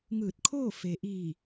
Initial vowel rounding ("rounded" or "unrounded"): unrounded